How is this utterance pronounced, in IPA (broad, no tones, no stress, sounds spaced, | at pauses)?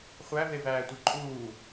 χʷ æ v e v æː tʷ i ǃʼ uː